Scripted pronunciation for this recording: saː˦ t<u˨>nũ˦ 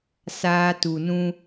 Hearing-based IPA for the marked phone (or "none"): u˨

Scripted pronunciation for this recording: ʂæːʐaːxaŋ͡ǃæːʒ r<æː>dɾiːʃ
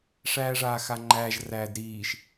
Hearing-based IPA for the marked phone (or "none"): æː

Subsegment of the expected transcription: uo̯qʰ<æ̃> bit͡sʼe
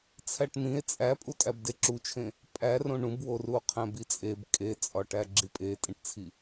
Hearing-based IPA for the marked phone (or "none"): æ̃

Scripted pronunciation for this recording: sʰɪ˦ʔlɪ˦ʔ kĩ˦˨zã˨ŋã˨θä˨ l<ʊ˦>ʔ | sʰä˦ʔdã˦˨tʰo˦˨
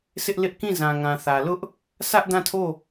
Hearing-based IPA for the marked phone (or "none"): ʊ˦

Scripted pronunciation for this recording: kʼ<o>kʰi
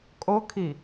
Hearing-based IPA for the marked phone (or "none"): o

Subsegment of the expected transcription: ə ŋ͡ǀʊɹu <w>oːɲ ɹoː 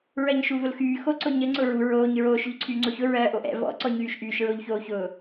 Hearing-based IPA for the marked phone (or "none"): ɹ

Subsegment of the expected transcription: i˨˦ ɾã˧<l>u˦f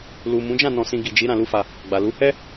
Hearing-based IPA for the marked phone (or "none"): l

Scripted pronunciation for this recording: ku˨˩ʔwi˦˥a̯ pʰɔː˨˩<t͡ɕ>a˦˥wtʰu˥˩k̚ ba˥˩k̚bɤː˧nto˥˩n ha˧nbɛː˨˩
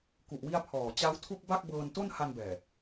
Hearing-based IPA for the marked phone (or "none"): t͡ɕ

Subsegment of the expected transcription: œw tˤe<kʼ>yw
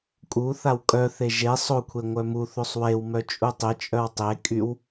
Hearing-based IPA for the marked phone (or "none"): kʼ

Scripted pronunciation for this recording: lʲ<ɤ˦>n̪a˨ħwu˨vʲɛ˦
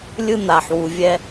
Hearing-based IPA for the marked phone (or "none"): ɯ˦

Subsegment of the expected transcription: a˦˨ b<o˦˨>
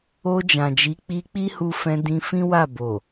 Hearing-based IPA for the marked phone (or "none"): o˨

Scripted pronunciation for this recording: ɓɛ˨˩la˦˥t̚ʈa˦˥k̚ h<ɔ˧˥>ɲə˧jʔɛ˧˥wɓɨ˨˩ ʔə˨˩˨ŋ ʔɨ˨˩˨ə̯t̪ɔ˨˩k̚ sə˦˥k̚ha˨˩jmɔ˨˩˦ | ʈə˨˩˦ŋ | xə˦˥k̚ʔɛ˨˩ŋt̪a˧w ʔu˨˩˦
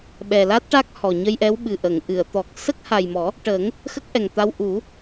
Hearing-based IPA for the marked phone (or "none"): ɔ˨˩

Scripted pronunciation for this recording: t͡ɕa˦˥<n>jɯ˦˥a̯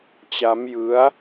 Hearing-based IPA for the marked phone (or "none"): m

